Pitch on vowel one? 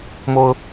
high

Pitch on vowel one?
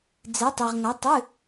rising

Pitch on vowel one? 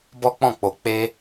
high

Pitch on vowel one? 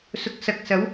rising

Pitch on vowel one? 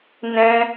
high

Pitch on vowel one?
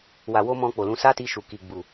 low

